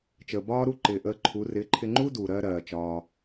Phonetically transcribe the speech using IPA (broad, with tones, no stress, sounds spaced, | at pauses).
t͡ʃ əː˨ b ɒː˦ ɾ u˦ ǃ ɪː˨ ʔ əː˧ ǃʰ u˨˦ r ɪː˨˦ ǃʰ ɪ˧ ŋ͡ǃ u˦ d uː˨ ɾ ɜː˧ ɾ ɜː˨ t͡ʃ ɒː˧